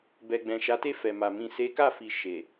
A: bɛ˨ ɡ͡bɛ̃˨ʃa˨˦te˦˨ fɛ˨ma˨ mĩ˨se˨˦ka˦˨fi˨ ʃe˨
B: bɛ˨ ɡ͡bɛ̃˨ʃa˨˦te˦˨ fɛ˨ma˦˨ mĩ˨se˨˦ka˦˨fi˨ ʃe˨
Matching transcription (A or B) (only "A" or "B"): A